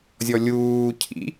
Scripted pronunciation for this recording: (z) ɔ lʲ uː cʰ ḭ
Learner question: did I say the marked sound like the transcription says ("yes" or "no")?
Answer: no